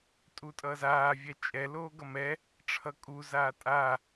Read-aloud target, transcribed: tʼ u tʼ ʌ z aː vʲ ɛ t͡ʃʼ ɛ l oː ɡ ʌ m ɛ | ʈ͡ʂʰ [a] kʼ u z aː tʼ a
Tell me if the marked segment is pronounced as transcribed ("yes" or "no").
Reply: no